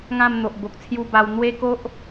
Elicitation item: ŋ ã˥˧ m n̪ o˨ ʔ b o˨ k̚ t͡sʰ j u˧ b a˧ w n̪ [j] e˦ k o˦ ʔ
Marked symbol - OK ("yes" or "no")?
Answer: no